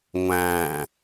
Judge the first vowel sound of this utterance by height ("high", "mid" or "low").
low